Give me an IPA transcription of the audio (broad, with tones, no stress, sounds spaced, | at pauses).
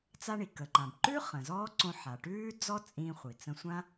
t͡s a˧ ɳ i˩ k ə˩ ǃ ã˩ b ǃ ʉ˥ χ ə̃˩ z ɔː˥ ǀ õ˧ ħ a˩ ʈ ʉː˥ d͡z ɔ˥ t͡sʼ ĩː˧ χʷ i˩ t͡s ə̃˧ sʷ ã˥